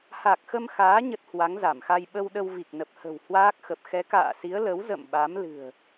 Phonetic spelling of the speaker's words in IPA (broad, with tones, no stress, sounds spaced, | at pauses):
h a˨˩ k̚ x ə˧ m x aː˨˦ ɲ ə˦˥ t̚ h w a˨˦ ŋ z a˧˩ m x a˧ j ɓ ə˧ w ɗ ə˧ w v i˨˩ k̚ n ə˨˩ p̚ h ə̤˨˩ w h w aː˦˥ k̚ x ə˨˩ p̚ x ɛ˨˦ k a̰ː˧˨ s i˨˦ ə̯ l ə˨˦ w z ə̰˧˨ m ɓ a˨˦ m l ɨ̤˨˩ ə̯